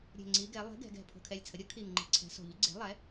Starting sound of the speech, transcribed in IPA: ɾʲ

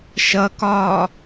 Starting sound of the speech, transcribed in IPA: ʃ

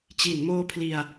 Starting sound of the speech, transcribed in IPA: t͡ɕ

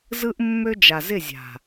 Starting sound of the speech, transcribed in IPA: z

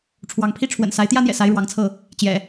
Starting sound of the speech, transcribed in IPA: ʈ͡ʂʰ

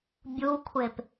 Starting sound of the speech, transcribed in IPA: bʲ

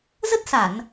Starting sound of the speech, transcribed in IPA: z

